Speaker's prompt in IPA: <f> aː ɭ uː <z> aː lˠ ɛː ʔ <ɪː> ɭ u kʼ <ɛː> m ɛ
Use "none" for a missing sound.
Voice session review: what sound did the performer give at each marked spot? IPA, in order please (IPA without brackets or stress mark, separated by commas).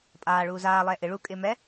pʼ, z, ɪ, ɪː